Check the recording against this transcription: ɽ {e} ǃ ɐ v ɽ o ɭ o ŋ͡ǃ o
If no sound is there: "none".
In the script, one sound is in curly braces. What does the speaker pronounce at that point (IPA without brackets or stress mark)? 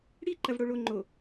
i